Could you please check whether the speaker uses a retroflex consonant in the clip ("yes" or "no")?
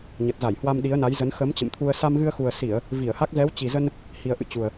no